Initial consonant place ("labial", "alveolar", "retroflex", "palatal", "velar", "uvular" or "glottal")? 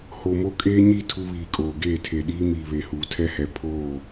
glottal